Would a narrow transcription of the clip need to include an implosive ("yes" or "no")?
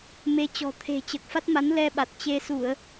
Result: yes